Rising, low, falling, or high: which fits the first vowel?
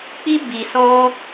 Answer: high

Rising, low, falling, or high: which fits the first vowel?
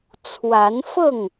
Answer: rising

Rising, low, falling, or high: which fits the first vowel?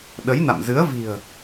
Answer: rising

